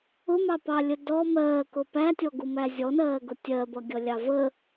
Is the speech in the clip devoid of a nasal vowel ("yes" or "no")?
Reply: yes